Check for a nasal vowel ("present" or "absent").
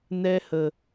absent